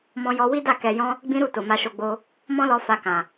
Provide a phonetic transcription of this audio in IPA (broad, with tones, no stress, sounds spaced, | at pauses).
m ɔ̃˧ j ɔ˧ w i˦ d a˦˨ k ɛ˨ j ɔ̃˧ | ɡ͡b ĩ˦ ɾ u˦˨ t o˨ m a˧ ʃ o˧ ɡ͡b o˧ | m ɔ̃˦ l ɔ˧ f a˧ k ã˨